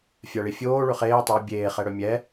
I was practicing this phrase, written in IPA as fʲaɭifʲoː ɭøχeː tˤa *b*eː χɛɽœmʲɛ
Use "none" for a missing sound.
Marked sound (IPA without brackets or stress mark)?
bʲ